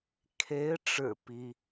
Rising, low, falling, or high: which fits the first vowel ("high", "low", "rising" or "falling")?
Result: rising